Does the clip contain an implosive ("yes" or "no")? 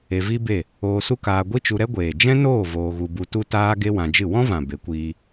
no